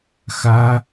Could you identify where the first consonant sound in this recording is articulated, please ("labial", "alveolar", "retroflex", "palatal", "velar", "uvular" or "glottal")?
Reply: velar